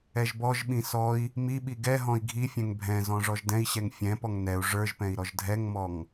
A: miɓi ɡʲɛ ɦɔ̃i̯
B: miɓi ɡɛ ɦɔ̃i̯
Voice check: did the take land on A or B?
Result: B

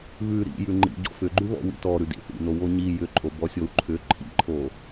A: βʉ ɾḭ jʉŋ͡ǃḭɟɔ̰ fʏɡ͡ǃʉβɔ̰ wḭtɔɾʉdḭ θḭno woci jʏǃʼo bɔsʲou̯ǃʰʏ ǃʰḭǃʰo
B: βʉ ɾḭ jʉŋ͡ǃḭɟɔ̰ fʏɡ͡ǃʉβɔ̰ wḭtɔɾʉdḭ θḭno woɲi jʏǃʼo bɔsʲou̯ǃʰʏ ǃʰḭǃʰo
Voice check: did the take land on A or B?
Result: B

